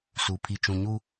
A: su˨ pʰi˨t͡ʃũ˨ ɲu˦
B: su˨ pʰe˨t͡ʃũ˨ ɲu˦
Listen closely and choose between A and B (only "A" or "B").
A